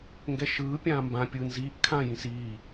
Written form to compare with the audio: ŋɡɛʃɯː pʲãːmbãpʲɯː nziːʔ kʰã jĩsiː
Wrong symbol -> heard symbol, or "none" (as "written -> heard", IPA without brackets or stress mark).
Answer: none